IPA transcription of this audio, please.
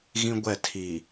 ɣ ĩ˦ ɡʷ ɛ˦˨ tʰ i˨

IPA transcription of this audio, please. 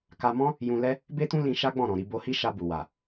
k a˧ m ɔ̃˦ | j ũ˧ l ɛ˦ | b e˦ t ũ˦ l ĩ˧ ʃ a˦ ɡ͡b ɔ̃˦˨ ɾ ɔ̃˨ ɾ i˧ b o˧ h i˦ ʃ a˧ b u˨ w a˨

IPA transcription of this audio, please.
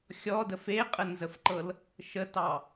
xʲ ɔ d ə f e qʼ ə n z ə f ǃ ɤ l | ʃ ə t ɑ

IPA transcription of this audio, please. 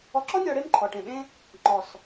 ɔ˧ ǁ ɔ˦ nʲ ɔ˧ ɽ e˦ m ǃʰ ɔ˨ ʈ ẽ˨ ɓ ẽ˦ | ŋ͡ǃ ɔ˨ s

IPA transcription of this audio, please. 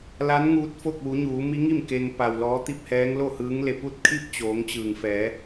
l a˧˥ n ŋ uː˧ t̚ f o˥˨ k̚ ʋ u˩˧ ɲ uː˩˧ m i˧˥ ŋ i˥˨ m k e˧ ŋ p a˩ w l ɔː˧˥ t̪ i˥˨ p̚ h ɛː˧˥ ŋ l o˥˨ h ɯː˧˥ ŋ l e˧˩ p u˥˨ t̚ kʰ i˥˨ p̚ t͡ɕ oː˩˧ ŋ t͡ɕ ɯː˩ ŋ f ɛː˩˧

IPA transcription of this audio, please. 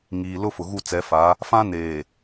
ŋ iː˨ l ʊ˦ f ʊ˨ ɣ u˦˨ t͡s ɛ˨˦ f a˨˦ | f ã˦ n eː˨

